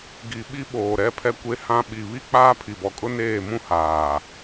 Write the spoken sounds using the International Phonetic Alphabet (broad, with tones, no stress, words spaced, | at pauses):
ɡi˨ɓi˦ ɓoː˨ ɾɛ˦pʰɛ˦ kʷe˦hã˦ ɓi˨βi˦k͡paː˦ pʰi˨bɔ˨kʼʊ˦neː˦˨ mũ˦ haː˨